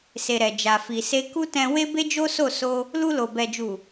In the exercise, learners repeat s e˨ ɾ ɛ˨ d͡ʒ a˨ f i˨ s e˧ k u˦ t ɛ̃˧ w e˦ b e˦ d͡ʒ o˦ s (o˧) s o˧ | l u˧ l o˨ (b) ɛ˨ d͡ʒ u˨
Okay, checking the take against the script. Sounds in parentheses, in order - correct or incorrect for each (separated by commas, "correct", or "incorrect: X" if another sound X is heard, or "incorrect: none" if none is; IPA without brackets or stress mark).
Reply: incorrect: o˦˨, correct